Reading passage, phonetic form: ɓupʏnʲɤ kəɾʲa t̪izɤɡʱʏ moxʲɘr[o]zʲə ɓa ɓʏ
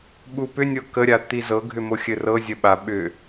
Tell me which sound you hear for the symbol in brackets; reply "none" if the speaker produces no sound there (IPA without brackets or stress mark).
ɤ